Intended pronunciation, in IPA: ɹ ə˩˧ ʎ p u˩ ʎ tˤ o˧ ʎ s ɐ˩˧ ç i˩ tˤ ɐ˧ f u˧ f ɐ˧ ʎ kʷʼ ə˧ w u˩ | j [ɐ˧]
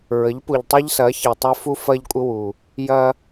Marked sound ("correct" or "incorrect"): correct